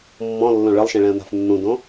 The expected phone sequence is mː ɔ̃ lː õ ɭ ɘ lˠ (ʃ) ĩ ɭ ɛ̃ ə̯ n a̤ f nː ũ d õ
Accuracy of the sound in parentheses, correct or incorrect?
correct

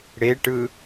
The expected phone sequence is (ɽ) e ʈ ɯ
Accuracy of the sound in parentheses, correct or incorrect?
correct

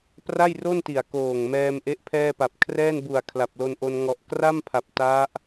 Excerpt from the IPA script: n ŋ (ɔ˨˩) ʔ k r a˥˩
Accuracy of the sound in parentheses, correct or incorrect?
correct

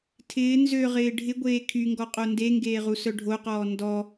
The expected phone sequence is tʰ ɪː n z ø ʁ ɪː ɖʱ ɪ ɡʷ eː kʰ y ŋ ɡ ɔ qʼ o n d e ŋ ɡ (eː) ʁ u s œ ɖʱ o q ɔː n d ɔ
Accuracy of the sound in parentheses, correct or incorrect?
correct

